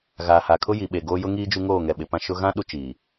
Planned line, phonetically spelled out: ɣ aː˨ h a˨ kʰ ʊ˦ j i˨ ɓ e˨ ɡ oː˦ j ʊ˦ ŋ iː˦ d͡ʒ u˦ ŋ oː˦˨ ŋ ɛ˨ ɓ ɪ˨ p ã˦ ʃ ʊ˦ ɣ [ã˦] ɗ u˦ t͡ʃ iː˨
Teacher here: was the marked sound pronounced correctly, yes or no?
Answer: yes